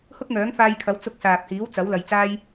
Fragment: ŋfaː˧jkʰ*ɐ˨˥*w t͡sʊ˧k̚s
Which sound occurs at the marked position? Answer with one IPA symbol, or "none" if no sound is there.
ɐ˨˥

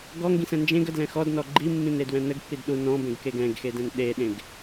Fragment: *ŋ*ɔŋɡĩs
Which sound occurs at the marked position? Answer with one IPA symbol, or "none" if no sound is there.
ɡ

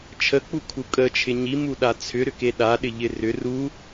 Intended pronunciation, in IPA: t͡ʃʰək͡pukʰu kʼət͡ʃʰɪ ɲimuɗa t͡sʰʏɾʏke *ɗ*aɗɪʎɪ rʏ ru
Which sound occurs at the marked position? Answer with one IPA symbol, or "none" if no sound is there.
ɗ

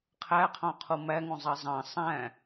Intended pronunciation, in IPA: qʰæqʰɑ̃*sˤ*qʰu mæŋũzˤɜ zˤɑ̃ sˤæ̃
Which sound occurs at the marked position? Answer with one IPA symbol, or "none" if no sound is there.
none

